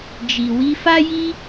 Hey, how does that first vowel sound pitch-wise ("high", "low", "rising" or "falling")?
low